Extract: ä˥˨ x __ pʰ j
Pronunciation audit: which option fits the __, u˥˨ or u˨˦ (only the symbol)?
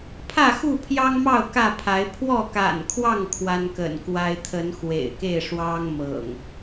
u˥˨